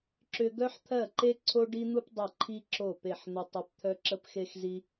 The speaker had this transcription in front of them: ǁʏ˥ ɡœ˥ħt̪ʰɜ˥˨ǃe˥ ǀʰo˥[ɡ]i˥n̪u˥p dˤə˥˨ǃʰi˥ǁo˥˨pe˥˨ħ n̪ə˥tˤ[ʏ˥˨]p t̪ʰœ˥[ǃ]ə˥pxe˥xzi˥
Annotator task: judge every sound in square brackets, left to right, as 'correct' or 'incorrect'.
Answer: incorrect: ɖ, incorrect: ʏ˥, incorrect: ǁ

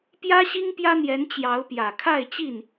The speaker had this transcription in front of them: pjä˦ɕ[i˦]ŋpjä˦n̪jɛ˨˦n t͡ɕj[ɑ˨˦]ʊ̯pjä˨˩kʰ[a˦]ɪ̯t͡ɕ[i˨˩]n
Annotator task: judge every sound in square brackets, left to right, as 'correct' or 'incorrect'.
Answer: correct, correct, incorrect: a˥˨, incorrect: i˥˨

